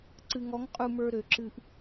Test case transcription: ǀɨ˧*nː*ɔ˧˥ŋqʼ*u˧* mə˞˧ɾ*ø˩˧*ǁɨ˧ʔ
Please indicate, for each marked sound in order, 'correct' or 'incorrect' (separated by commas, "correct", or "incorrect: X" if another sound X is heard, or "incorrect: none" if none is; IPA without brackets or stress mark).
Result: incorrect: ŋ, correct, correct